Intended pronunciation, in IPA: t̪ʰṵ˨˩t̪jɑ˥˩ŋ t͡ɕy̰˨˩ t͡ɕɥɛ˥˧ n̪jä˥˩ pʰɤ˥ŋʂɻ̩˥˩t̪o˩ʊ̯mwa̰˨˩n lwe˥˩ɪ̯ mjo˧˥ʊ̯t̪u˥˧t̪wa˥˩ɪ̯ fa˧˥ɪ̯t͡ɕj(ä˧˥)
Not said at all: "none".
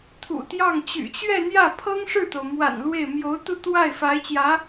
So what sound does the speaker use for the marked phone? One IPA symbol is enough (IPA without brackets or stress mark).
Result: ä˧˥